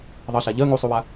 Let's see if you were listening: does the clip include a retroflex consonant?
no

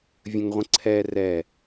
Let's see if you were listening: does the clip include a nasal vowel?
yes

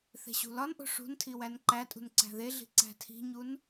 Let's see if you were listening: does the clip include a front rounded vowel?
no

